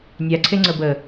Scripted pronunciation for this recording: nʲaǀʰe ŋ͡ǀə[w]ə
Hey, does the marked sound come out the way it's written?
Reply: no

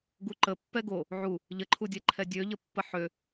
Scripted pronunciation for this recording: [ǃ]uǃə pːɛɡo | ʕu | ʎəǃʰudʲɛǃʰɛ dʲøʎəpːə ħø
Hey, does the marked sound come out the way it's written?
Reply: no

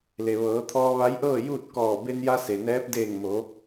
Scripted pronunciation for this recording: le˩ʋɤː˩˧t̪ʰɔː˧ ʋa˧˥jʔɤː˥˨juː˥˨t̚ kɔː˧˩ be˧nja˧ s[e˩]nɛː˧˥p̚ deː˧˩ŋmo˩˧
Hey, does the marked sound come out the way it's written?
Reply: yes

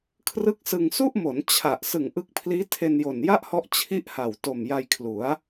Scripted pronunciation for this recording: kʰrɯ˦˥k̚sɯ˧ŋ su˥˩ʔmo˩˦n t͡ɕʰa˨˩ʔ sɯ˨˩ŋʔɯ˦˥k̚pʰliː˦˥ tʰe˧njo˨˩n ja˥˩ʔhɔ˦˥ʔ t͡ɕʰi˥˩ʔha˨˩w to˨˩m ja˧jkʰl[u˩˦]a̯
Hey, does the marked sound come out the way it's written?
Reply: yes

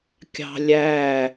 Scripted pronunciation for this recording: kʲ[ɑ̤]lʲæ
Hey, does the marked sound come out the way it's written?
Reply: yes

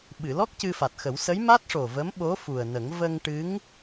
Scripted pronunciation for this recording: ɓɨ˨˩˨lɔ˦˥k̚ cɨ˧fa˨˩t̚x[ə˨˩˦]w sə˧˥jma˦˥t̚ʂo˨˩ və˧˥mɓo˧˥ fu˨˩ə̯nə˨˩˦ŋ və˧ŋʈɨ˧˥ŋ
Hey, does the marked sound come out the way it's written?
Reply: yes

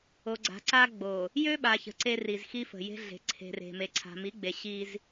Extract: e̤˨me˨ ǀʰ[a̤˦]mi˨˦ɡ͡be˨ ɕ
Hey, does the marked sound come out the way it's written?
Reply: no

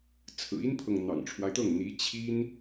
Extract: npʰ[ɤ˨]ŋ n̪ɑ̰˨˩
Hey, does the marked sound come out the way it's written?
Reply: yes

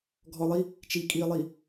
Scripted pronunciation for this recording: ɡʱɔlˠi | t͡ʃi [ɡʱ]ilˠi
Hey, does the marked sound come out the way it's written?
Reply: no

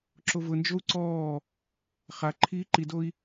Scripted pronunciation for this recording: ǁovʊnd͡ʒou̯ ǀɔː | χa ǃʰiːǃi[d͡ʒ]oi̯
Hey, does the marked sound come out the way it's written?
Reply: no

